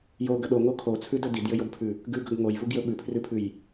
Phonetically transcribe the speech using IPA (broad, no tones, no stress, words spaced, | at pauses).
joɡə ɗoŋo kʰot͡sʰʉdɵ didjɘjobpʰʉ | ɡʉɡɵɡ ŋojvuɡjɵ ɓʉpʰrʉpʰʉj